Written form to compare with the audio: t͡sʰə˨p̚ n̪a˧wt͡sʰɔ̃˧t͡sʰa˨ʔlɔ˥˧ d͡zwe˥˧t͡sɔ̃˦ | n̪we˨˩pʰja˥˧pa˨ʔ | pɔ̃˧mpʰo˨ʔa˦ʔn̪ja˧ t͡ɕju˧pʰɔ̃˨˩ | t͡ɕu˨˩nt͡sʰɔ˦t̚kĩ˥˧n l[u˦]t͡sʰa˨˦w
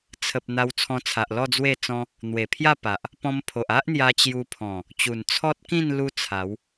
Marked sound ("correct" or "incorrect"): correct